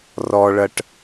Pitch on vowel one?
high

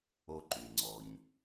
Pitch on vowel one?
high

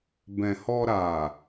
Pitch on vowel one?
low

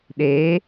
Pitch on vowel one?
rising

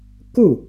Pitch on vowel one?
falling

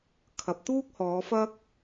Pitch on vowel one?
low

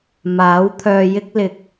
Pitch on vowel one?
rising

